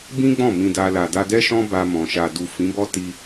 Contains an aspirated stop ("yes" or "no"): no